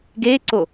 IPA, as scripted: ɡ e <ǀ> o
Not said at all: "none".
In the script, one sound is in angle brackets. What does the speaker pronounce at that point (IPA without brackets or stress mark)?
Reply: ǀ